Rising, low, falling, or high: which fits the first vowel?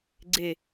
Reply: falling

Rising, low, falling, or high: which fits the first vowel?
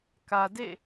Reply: low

